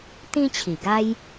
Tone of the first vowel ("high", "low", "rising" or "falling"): high